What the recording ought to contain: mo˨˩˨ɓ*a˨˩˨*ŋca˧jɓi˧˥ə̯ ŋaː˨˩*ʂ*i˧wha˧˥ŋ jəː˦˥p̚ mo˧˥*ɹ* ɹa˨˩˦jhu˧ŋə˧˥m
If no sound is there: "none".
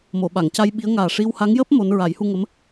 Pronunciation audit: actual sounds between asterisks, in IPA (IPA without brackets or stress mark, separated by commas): a˨˩˨, ʂ, n